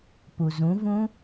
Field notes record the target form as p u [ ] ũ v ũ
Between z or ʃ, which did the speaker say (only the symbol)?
z